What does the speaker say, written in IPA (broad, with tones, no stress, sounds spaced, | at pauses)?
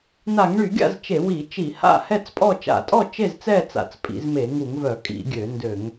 n a˧˩˧ ŋ ɳ y˧˩˧ ɡʲ a̰˥˨ z t͡ʃ e˧˩˧ w i˧˩˧ t͡ʃ i˧˩˧ h a̰˥˨ h ɛ˥˨ t͡s pʼ ɔ˥˨ t͡ʃ a̰˧˩˧ tʼ ɔ˥˨ t͡ʃ e˥˨ z t͡s ɛ˥˨ t͡s a̰˧˩˧ t͡s pʼ ḭ˧˩˧ z m e˧˩˧ ŋ u˧˩˧ ŋ v œ˧˩˧ kʼ ḭ˧˩˧ ɡʲ ø˧˩˧ n d ø˧˩˧ ŋ